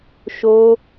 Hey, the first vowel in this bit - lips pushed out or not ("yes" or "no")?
yes